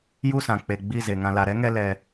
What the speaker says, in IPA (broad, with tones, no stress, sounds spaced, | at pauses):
j u˦˨ s ã˨ k͡p e˨ ɡ͡b i˦˨ z e˨ ŋ ã˨ l a˨ ɾ ɛ˦ ŋ ɛ˧ l ɛ˧